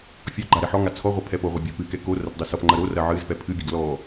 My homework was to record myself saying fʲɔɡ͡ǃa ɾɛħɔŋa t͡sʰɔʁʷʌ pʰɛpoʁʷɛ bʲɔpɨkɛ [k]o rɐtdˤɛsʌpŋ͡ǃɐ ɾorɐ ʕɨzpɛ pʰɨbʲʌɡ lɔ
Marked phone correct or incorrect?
correct